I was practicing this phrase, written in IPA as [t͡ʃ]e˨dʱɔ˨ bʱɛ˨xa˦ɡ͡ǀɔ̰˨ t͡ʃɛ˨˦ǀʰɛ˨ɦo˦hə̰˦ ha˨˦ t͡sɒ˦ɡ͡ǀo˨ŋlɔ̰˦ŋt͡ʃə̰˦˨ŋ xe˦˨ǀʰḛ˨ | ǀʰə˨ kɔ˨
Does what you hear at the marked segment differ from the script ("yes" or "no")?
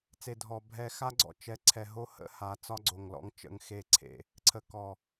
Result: yes